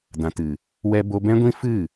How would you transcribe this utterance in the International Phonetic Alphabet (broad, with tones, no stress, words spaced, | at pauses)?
dã˨ tɨ˨ | wɛ˧ bo˧bɛ̃˦ɡʷĩ˦ fɨ˦˨